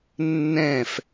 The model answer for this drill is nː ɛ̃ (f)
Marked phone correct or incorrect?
correct